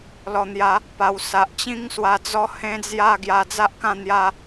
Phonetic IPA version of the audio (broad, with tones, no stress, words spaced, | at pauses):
lɔ˧n̪ja˦ | pa˧w sa˨ʔt͡ɕĩ˦ŋswa˧ d͡zɔ˦hẽ˦d͡zja˥˧ ɡja˧d͡za˦ʔkã˥˧ n̪ja˦